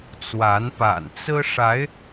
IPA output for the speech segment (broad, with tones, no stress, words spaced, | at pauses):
t͡swa˨˦npa̰˨˩nt͡sɹ̩˦ʂa˨˦ɪ̯